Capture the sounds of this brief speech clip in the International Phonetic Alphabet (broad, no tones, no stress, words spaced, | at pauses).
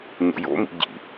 ɲo̰jo̰mḭ ɟḭ